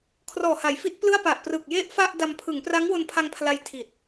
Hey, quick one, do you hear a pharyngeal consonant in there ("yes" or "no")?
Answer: no